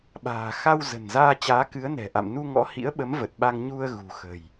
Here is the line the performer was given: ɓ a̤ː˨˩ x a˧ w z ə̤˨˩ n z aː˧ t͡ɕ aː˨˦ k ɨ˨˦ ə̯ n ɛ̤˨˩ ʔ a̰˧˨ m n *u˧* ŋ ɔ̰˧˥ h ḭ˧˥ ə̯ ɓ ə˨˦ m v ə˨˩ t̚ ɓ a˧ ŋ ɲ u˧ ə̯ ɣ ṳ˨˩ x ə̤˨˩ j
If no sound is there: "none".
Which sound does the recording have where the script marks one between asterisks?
u˧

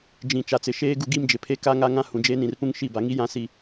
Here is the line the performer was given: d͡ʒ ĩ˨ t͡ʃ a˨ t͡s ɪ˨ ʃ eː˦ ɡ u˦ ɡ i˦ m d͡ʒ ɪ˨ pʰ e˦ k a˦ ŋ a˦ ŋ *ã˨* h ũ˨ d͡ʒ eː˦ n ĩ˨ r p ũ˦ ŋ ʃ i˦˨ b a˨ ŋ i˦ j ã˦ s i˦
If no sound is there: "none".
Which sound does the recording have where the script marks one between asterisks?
ã˦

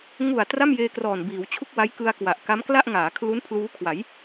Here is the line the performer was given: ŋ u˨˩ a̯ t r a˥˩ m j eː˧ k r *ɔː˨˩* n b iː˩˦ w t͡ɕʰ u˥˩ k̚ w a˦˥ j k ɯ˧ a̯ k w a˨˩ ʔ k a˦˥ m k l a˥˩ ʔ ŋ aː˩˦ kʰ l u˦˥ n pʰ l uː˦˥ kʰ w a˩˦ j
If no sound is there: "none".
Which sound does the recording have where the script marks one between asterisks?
ɔː˨˩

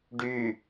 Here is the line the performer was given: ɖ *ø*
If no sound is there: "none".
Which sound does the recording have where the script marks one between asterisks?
y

